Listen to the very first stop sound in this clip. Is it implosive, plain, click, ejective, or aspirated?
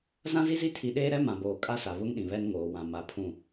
aspirated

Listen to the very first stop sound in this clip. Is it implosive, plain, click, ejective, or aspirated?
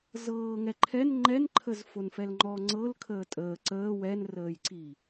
click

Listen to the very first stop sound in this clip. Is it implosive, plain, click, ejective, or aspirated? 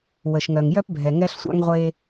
plain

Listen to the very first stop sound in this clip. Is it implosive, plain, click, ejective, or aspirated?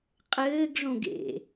ejective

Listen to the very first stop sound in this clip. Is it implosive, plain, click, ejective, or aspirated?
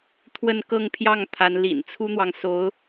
aspirated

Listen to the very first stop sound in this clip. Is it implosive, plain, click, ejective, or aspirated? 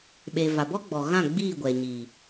implosive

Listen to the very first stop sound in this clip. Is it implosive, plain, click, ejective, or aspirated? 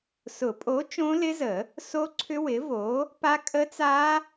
ejective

